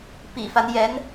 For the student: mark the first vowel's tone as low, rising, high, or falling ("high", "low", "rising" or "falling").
low